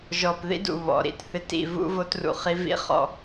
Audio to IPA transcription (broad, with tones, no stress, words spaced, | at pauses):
ʒɔ˨p ðḭ˦dṵ˨ βɔ̰˨ɾḭ˦tθɪ˦t ḭ˦˨ vṵ˦vo˦trṵ˨χi˦ vḭ˦χɔ̰˦˨